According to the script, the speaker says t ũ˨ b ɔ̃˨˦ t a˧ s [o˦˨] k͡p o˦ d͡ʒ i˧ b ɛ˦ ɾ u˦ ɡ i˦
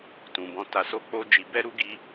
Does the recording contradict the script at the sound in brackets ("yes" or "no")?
yes